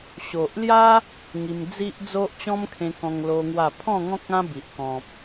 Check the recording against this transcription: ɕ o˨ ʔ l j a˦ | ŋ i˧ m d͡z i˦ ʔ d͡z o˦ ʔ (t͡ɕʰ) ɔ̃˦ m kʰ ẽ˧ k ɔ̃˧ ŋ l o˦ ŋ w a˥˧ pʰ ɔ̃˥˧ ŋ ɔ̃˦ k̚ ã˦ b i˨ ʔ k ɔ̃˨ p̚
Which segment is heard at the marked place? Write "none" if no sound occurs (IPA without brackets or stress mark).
t͡ɕ